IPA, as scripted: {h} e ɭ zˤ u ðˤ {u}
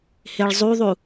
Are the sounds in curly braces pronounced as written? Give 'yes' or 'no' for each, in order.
yes, yes

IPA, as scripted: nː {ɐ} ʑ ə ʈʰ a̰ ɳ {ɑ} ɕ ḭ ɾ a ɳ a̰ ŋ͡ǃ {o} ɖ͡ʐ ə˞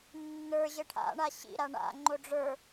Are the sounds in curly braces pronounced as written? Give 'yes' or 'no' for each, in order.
no, no, yes

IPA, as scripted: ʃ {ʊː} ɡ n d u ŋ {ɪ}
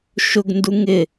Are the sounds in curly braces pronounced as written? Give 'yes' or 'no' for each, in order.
no, yes

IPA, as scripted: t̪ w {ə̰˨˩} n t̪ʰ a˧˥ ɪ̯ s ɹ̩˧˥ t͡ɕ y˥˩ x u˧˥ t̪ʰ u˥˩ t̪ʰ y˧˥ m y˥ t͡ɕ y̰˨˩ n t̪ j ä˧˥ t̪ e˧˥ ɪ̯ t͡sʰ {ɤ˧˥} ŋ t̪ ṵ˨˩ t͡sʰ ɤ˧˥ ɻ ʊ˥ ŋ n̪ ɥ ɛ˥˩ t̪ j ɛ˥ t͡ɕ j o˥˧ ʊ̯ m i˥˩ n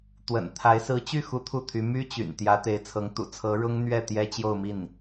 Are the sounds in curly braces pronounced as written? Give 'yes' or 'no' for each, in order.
yes, yes

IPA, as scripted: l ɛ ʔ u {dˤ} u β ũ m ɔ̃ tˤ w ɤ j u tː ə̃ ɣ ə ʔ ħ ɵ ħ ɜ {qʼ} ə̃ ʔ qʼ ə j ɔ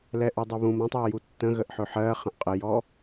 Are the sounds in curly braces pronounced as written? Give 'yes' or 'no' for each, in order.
yes, no

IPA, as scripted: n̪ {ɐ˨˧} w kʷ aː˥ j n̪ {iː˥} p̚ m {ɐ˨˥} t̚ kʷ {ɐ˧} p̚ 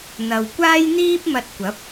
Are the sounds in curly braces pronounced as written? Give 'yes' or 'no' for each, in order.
no, yes, no, no

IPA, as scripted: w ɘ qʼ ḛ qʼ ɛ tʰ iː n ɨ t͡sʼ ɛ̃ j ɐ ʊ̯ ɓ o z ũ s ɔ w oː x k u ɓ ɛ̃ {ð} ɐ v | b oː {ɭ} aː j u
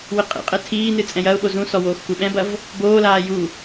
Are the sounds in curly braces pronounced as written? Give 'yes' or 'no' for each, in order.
no, no

